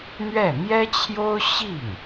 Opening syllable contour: falling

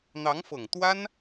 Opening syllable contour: rising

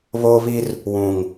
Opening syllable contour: high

